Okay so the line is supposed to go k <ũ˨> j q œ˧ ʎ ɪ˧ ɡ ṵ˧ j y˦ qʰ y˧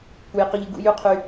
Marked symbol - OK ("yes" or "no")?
no